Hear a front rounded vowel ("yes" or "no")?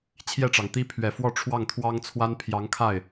no